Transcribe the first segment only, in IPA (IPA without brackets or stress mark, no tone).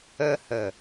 ə